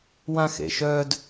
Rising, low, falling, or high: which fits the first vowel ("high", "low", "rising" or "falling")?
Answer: high